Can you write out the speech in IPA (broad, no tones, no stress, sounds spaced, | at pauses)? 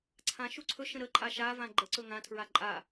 ǀʰ ã ʃ u ǀʰ ɵ ʃ ə̃ ɾ ə ǃʼ a ʃ a v ã ɡ͡ǃ ə ǀ ɵ ŋ ã tʰ ɹ a ǃʼ a